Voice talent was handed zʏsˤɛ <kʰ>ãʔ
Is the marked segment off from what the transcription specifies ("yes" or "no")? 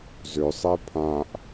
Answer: yes